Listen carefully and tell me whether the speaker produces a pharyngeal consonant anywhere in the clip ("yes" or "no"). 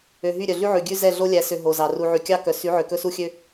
yes